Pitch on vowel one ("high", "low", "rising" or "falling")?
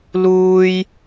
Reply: high